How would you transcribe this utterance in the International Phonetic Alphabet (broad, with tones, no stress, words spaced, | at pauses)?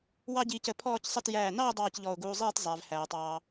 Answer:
wɑ˥ɟiː˧cə˩˧ pʰɔː˥˧csˤə˥˧t jæː˧˩nɑ˥˧ʊ̯ dˤɑː˥˧cʎɔ˧˩ʊ̯ɡuː˧zˤiː˥˧t zˤæ˩˧vhæː˩˧tˤɑː˧